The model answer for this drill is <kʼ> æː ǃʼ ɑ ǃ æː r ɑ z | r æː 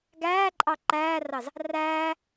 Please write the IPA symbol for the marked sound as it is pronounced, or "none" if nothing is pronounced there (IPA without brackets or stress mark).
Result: ɡ